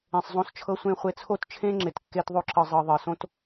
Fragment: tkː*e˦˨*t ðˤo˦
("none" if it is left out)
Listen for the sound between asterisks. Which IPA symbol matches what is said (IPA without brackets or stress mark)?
e˦